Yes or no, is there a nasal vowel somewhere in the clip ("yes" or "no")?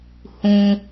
yes